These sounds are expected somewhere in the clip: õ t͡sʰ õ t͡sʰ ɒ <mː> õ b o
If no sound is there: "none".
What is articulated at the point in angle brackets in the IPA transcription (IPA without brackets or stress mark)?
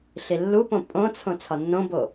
nː